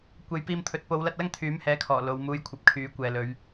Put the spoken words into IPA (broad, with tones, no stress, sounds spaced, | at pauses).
kʷ e˨˧ j p iː˧ m t̪ʰ ɵ˨˥ t̚ p o˨˧ w l ɐ˧ t̚ l ɐ˥ ŋ t̪ʰ yː˨˥ m h ɛː˨˧ kʰ ɔː˨˩ l o˨˧ w m uː˧ j kʷʰ ɐ˨˥ p̚ kʰ yː˨˥ kʷ ɛː˨ l ɵ˨˧ ɥ